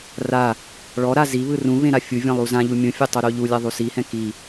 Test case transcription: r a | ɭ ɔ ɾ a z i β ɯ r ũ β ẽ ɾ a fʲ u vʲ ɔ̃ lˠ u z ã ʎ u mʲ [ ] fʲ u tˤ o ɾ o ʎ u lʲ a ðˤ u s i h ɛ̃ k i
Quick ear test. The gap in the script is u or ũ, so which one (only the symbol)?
ũ